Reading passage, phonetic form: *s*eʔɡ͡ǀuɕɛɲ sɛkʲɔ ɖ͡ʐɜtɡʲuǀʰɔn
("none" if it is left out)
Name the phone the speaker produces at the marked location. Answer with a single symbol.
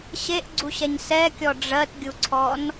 ɕ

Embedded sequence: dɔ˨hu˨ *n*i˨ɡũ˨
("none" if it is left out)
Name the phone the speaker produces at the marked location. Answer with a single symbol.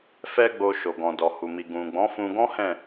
m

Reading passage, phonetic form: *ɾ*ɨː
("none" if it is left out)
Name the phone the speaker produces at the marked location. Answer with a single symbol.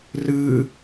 r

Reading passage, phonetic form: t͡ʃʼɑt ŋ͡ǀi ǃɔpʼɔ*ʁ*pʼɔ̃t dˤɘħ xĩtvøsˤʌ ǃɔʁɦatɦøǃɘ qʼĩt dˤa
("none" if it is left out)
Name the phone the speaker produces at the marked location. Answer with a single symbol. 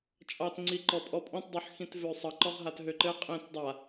none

